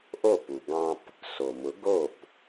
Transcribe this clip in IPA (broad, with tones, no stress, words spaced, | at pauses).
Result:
ʔo˥˩pu˩ ɡɑ̃˧p | so˩mʊ˩˥ ɡo˥˩p